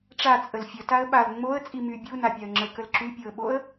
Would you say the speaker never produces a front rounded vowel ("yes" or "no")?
no